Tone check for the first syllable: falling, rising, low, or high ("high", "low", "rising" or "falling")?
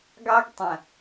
high